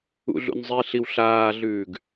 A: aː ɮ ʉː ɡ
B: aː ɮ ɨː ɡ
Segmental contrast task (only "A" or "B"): A